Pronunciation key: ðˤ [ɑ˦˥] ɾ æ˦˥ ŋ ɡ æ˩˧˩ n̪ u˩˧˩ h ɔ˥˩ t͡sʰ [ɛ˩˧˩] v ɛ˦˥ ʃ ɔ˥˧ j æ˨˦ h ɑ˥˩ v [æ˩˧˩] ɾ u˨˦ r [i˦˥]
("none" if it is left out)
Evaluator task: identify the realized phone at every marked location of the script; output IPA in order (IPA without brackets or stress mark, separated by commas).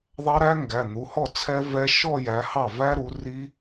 ɑ˦˥, ɛ˦˥, æ˦˥, i˦˥